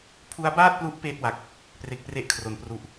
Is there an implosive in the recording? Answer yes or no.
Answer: no